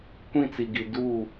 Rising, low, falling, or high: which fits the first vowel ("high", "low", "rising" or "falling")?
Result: falling